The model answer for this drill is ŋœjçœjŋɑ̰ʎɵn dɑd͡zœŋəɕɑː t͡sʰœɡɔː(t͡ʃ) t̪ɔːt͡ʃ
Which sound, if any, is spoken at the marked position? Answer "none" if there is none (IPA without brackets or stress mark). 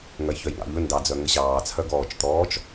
t͡ʃ